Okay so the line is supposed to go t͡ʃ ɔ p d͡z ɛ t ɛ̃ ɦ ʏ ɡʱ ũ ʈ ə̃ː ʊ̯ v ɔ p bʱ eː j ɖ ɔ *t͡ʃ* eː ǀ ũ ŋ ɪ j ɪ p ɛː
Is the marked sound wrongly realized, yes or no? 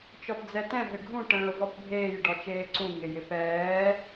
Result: no